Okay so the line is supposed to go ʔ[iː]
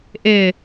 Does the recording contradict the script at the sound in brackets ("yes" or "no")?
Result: yes